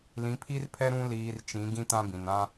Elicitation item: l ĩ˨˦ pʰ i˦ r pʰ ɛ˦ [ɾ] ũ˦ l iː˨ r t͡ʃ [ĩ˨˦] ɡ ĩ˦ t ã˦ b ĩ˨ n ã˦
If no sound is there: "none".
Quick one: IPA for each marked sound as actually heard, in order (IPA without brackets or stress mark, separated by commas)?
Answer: ɾ, ĩ˨˦